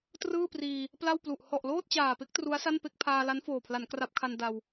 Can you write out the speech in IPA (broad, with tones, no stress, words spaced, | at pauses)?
trɯː˥˩priː˧ | pla˥˩wplu˨˩ʔ hɔ˨˩ʔloː˥˩t̚t͡ɕaː˨˩pe˥˩k̚ tru˦˥a̯sa˥˩npe˥˩k̚ pʰaː˧ la˦˥nfoː˨˩pʰla˩˦n kra˦˥p̚kʰa˧n da˧w